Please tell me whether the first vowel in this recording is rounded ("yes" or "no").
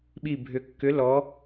no